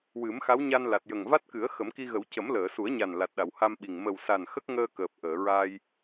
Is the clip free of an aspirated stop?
yes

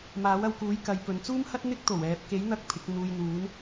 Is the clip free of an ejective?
yes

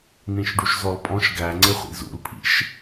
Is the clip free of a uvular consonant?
no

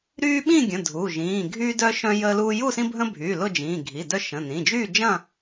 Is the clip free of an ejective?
yes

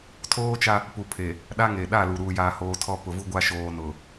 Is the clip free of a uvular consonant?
yes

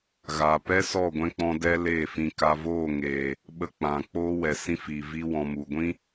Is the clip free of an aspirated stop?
yes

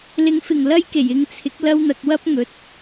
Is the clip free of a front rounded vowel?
yes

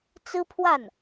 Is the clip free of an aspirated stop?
no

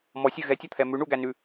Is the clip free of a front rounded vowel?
yes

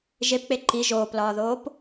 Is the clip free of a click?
no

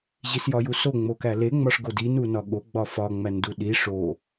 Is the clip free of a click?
yes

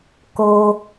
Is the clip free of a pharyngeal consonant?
yes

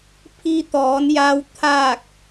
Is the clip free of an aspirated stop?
no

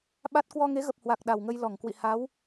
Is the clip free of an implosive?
no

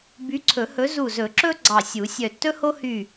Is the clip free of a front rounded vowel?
no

